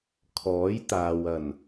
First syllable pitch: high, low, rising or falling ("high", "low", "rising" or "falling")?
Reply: rising